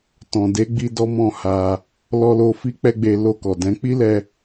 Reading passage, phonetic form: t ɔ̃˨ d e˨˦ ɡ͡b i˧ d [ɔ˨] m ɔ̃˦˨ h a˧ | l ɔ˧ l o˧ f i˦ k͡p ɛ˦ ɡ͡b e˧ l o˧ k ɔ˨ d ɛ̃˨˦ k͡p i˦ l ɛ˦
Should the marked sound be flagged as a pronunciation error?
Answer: yes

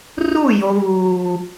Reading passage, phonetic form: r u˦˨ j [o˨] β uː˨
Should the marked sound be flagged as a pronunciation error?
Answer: no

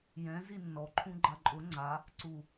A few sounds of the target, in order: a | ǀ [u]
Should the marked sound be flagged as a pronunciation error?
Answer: no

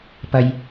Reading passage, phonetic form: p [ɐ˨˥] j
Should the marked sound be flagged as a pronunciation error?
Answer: yes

